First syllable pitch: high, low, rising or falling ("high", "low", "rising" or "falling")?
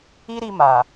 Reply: high